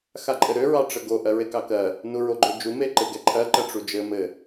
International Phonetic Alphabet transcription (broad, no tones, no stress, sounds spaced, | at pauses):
x a ǃʼ ɘ ɾ ø ɹ ɑ ʈ͡ʂ ə ɡ o ʔ ɜ ɹ e k ɑ k ɜ | n u ɹ o ɡ͡ǃ ø d͡ʒ u m e ǃ e ɡ ɛ ǃʰ ɜ ǃ ɜ ʈ͡ʂ u d͡ʒ ɘ m ɘ